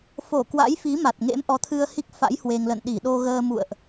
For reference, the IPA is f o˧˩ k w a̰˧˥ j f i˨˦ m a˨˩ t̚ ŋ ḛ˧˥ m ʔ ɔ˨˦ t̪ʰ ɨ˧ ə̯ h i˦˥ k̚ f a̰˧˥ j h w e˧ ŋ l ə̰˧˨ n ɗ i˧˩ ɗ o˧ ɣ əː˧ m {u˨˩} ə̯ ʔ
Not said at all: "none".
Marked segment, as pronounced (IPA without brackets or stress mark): ṵ˧˨